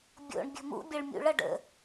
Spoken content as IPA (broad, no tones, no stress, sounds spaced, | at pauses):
bʲ o̰ ɳ bʲ ə̤ m ṵ bʲ ʌ ɭ mʲ ṵ ɭ ʌ ɖ ə̰